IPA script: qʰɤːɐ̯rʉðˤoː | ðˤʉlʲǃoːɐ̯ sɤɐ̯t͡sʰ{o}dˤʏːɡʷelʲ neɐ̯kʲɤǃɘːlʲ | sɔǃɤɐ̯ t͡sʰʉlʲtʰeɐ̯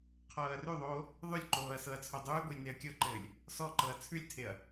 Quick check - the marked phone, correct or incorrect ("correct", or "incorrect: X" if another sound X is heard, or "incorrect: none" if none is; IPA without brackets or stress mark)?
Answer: correct